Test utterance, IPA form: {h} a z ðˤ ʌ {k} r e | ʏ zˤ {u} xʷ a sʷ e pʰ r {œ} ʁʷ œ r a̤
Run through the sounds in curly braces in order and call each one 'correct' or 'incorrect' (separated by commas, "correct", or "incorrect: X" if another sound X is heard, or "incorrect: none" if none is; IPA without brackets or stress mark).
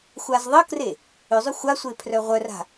incorrect: xʷ, correct, incorrect: ʏ, correct